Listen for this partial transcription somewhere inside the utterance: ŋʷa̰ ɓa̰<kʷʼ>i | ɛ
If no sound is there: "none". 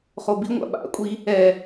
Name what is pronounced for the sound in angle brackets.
kʷʼ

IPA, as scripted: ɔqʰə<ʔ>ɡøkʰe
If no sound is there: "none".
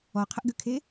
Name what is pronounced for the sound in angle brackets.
ʔ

